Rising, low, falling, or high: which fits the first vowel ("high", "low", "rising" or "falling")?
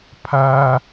high